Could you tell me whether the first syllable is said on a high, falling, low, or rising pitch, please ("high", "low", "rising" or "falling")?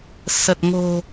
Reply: low